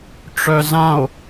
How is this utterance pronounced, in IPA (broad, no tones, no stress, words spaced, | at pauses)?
ʈ͡ʂœzão̯